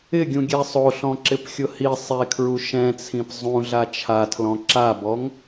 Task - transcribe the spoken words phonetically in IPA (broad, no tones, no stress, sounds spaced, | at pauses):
ɪ ɡʲ ũ ɡʲ ɛ sˤ o ɬ ɔ̃ ǁ ɪ p xʲ ʊ h i sˤ e kʰ ɹ u ʃ ɛ̃ t͡sʰ ĩ p zˤ ũ ɮ a t͡ʃʰ a tʰ l ɔ̃ ǁ a b ɔ ŋ